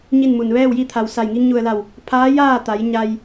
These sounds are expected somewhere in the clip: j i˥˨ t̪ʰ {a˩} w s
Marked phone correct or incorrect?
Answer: correct